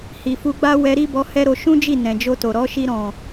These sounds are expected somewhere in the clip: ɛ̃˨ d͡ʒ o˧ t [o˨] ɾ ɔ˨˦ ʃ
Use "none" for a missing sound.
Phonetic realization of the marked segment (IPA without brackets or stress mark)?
o˨